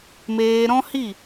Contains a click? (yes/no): no